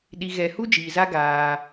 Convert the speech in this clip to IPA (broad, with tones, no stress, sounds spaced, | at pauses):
ɗ i˨ ɣ ɛ˨ h u˦ d͡ʒ iː˨ z a˦ ɡ aː˦